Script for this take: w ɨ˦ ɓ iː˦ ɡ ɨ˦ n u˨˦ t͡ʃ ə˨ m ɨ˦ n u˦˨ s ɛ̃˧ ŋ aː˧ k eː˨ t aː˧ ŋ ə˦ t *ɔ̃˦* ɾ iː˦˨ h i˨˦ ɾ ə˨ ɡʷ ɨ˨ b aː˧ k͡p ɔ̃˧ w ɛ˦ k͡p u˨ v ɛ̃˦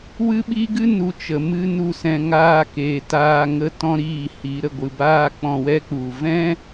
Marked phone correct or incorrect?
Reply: correct